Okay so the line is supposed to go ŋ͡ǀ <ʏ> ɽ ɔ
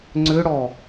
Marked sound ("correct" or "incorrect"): correct